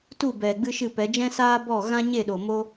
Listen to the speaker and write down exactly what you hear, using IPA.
t u˦˨ b ɛ˨ ɡ͡b ɨ˦ ʃ ɨ˦˨ p ɛ˨˦ d͡ʒ ɛ̃˦ s aː˦ b ɔ˦˨ ɣ ã˦ ɲ e˦˨ ɗ o˨ m o˦

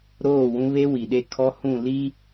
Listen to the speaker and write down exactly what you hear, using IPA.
ɾ oː˦˨ w ũ˦ β e˦ w i˨ ɗ e˦˨ kʰ ɔ˦ h ũ˦˨ l i˦

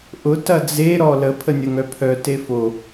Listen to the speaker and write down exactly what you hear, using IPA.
ʔ ʊ t ɐ d͡z e ɾ ɔ l ə pʰ ə nʲ ɐ ŋ œ pʰ œ t e f o

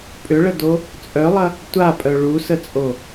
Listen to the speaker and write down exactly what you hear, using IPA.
pʼ ʏ ɭ ə d o | t͡sʼ œ lˠ ɐ | tʷ a pʼ œ ɭ u s ə t͡sʼ o

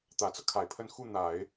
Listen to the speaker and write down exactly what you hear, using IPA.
t̪ ä˨˩ t͡s ɤ˦ kʰ a˨˩ ɪ̯ pʰ ə˥˧ n x u˥˩ n̪ a˨˩˦ ɪ̯

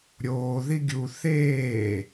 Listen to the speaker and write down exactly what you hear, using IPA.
ɾʲ oː ð i ɡʲ u θ eː

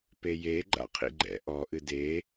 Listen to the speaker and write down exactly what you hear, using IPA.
p e j e ɡ͡ǃ a̰ qʰ ḭ ɡ͡ǃ ɛ̰ ʔ ɔ ʔ ɨ d e

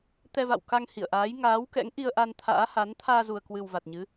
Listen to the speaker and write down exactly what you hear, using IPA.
t̪ ɛ˧ v a̰˧˨ w k a˧ ŋ h ḭ˧˨ ə̯ ʔ aː˨˦ j ŋ aː˨˦ w k ɛ̰˧˥ ŋ ʔ i˧ ə̯ ʔ a˧ n t̪ʰ a̰ː˧˥ h a˨˦ n t̪ʰ aː˧ z u˨˩ ə̯ k w ɨ˨˩ w v a˨˩ t̚ ɲ ɨ˨˦

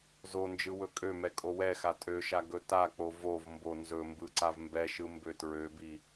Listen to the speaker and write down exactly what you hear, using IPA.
z o n d͡ʒ ɯ w ɵ kʼ ø m ɛ kʼ o w ɛ x a tʼ ø ʃ a ɡ ɵ t a k͡p o v o v m b o n z ɵ m b ɯ ǀ a v m b ɛ ʃ ɯ m b ø t ɹ ø b i

